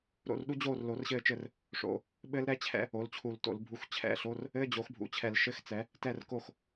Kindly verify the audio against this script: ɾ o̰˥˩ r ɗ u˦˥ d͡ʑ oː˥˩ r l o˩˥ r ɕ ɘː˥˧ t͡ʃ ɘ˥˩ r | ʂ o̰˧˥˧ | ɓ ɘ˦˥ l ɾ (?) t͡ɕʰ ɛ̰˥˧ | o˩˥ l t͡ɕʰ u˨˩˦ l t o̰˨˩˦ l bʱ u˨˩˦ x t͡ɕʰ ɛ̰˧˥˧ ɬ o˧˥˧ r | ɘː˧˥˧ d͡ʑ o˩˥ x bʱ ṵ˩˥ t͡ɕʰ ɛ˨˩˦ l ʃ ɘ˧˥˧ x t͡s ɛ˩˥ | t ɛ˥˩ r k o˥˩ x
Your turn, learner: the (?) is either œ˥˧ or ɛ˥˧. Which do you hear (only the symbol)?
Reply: ɛ˥˧